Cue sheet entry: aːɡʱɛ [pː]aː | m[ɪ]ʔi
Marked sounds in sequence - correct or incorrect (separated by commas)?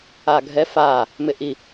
incorrect, correct